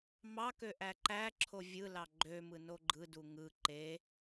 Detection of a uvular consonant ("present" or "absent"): absent